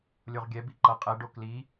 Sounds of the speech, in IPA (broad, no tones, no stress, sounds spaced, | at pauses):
lʲ o ʁ ɡʲ ɛ b i ǃ ʌ qʼ ɛ ɖ o k l i